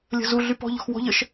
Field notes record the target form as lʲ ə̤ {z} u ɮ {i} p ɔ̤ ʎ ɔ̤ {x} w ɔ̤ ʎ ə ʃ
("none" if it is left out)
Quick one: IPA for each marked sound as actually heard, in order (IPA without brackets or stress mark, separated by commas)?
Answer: z, y, x